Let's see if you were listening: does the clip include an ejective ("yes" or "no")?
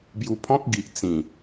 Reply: no